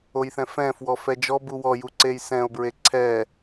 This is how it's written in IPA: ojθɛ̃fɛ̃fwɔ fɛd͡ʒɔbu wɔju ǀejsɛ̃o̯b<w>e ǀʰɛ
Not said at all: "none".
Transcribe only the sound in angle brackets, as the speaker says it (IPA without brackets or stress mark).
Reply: ɹ